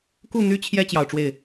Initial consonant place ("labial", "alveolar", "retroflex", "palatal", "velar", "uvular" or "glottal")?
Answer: velar